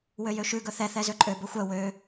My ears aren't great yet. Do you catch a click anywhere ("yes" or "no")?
yes